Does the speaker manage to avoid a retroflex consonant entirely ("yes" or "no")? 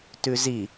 yes